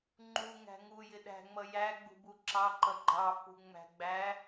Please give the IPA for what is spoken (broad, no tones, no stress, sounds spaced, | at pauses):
ŋ͡ǃ u ŋ æ̤ ŋ u j ɪ ɗ æ̤ ŋ͡m ʌ j æ ɡ͡b ṳ b u ǁ ɑ ǃ ʌ ɡ͡ǃ ɑ f ṳ ŋ͡m æ̤ ɡ͡b æ